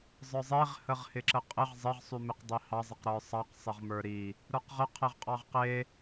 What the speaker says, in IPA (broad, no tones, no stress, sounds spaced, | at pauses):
zˤ ə˞ zˤ e ʁ h ə ʁ h ɪ ǁ ə qʼ ɪ ʁ zˤ ɪ ʁ sˤ y m ɪ q dˤ i h ɑ zˤ ɪ q ɾ ə˞ sˤ ɑ q sˤ ɪ ʁ m ə˞ ɾ i | ɾ ə˞ q ʁ ə qʰ e ʁ qʼ ɑ ʁ q e